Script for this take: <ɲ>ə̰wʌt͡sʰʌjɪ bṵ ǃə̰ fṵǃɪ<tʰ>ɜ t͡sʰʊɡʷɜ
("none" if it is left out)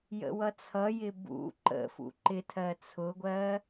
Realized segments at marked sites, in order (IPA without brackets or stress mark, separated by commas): j, tʰ